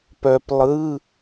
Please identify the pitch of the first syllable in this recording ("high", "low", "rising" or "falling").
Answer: low